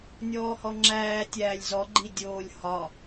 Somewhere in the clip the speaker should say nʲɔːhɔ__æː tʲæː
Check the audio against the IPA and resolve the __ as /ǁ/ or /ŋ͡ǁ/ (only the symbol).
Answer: ŋ͡ǁ